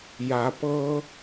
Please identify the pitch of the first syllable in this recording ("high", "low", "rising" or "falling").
rising